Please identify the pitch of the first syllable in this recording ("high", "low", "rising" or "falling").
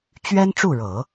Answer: high